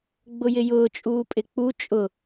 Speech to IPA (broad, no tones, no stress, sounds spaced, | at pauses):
ɡ͡b ʊ j ɪ j ʊː t͡ʃʼ uː pʼ ɪ k͡p u t͡ʃʼ ʊ